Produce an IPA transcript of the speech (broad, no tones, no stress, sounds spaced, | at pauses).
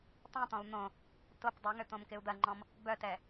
tˤ ĩ t̪ ɔ̃ u̯ n̪ õ | t o p dˤ ø ŋ ø t̪ õ m k ɪ u̯ d̪ ɐ ŋ͡ǃ ɔ̃ m | b œ t ɛ